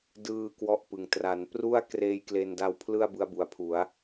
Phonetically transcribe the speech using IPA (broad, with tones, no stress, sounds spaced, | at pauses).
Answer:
d ɯː˧ k w ɔ˦˥ ʔ p ɯ˨˩ ŋ t r a˩˦ n p r u˥˩ a̯ k r eː˦˥ j k l e˧ n d a˦˥ w pʰ l ɯ˥˩ a̯ b ɯ˦˥ a̯ b u˨˩ a̯ pʰ u˩˦ a̯